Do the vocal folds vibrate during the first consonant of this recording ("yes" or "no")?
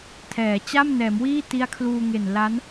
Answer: no